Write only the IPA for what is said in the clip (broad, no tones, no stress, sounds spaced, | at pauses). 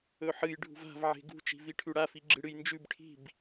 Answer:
ɵ ħ ɨ j ɖʱ ṳ v a̤ v ʕ e̤ ɡ ṳ t͡ʃ i̤ v i ʈʰ ʉ ɽ a f i ɡ͡ǁ ɨ ɽ ɨ j n d͡ʒ ʉ b ʈʰ i̤ b